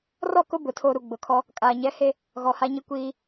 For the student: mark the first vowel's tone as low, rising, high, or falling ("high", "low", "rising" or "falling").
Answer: falling